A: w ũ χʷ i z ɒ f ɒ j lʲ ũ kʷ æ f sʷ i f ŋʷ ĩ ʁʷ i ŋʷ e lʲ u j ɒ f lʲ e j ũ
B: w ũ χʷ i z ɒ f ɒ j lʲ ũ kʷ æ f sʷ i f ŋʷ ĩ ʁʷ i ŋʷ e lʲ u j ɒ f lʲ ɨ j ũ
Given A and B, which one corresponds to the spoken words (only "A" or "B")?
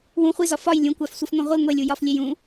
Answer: A